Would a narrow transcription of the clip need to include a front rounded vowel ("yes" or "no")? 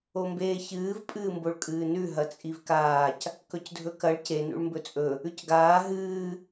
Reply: no